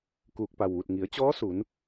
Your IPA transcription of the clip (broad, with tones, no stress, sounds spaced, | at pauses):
k uː˧˩ k̚ p a˧˩ w ʋ u˧˩ t̚ ŋ i˩˧ ə̯ t͡ɕ ɔː˧˥ s u˩˧ n